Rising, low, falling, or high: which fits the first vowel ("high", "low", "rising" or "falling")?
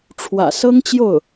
low